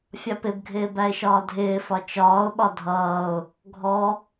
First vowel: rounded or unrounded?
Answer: unrounded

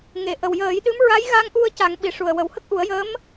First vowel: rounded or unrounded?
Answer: unrounded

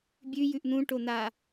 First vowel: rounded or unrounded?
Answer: rounded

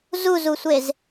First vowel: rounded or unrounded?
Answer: rounded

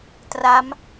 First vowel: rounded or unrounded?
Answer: unrounded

